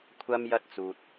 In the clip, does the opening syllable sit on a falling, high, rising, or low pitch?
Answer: low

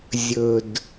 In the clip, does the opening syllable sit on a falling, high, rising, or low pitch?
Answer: low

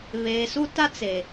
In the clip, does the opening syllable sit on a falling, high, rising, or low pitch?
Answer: low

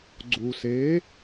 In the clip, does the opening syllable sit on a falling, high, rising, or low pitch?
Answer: low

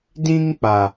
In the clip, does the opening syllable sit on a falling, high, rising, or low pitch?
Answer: high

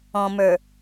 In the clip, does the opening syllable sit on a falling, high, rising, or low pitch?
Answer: low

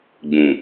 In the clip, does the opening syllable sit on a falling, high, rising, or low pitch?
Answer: low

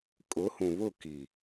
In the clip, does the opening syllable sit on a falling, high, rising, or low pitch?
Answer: rising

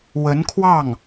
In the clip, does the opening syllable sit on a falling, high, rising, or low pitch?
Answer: rising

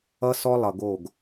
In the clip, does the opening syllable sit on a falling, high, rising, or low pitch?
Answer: high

